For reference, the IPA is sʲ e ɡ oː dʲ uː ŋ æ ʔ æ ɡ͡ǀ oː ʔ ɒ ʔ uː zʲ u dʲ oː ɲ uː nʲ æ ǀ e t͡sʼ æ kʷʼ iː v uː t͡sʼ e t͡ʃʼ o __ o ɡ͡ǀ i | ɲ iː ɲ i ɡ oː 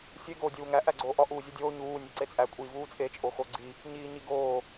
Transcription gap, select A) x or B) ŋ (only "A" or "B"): A